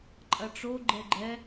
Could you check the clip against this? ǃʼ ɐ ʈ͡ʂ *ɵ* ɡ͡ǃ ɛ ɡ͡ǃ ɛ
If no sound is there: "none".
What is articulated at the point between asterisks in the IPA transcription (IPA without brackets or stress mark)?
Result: o